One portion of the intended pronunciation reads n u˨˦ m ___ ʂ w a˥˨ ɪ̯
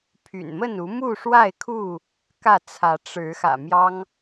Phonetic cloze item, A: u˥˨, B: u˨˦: A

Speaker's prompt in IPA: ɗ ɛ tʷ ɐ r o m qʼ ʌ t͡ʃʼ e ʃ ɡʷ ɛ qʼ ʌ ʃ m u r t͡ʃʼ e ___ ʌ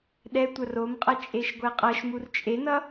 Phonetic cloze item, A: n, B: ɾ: A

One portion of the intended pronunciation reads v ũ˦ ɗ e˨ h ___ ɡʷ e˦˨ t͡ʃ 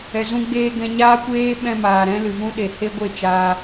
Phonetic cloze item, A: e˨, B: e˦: B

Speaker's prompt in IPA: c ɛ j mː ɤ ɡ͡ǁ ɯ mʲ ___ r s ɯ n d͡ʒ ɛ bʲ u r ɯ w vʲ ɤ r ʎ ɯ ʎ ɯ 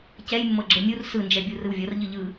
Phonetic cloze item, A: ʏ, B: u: B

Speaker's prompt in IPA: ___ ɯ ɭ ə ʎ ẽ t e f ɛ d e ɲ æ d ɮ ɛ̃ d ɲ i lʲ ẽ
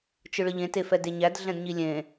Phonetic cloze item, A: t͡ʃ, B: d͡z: A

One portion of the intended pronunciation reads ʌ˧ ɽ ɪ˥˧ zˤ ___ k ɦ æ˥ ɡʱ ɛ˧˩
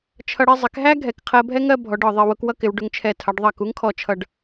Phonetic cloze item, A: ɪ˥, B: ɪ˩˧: B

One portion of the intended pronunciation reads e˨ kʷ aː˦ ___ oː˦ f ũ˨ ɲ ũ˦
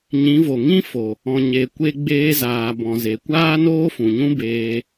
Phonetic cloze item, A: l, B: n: B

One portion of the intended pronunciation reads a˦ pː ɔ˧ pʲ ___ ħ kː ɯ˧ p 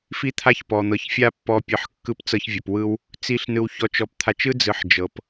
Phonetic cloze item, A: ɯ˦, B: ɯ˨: B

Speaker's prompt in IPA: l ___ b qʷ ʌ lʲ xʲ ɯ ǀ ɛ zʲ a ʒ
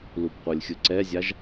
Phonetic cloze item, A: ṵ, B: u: B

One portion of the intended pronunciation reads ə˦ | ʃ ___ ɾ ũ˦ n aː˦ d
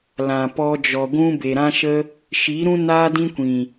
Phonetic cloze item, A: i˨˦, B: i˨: A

